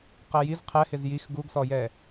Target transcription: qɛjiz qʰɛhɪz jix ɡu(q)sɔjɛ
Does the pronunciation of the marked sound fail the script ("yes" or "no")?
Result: yes